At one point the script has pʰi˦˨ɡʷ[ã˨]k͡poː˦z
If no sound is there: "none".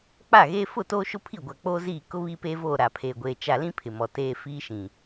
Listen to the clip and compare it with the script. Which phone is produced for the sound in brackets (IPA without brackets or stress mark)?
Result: a˨